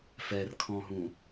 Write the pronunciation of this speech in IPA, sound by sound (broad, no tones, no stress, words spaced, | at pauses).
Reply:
fɛrkʰɔ̃ɦũ